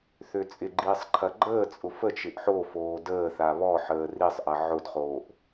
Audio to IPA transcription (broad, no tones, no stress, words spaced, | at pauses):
θøt͡sʼɪɡ͡ǃiːsˤ ǃʰɐɡ͡ǃəːt͡sʼʊ fət͡ʃɪʔ ħofoː dəːθa βɔħəː risˤʔɐ ʕʊdχoːʔ